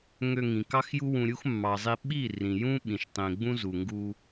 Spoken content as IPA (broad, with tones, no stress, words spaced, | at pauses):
ŋø˧ŋĩ˨ kɑ˦xju˦ wũ˧ ɾʲu˦xmːɑ˨zˤi˧ ɓi˦˨rĩ˨jũ˦ ɓĩ˨ʃtˤĩ˨ ɡ͡bũ˦zu˨ŋɡu˧